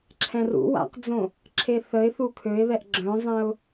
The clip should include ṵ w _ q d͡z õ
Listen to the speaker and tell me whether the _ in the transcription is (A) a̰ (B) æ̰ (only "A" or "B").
A